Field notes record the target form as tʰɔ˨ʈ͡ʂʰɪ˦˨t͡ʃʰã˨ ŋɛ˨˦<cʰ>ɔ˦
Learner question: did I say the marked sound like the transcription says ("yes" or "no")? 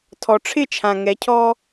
yes